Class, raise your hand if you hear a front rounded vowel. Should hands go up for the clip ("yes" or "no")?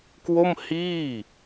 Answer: no